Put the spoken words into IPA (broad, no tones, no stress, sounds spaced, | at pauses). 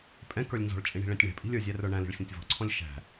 pʼ ɛ̃ k ə˞ lʲ n z ɔ̤ ɭ t͡ʃʼ ĩ ɳ i̤ ɭ ɛ̃ tʲ ɳ ɛ̤ pʼ i̤ lʲ ə˞ zʲ æ r ə˞ ɳ æ̃ l i̤ ɭ sʲ ɔ̃ tʲ v ɔ̤ ǀʰ ɔ̃ lʲ ʃ æ̤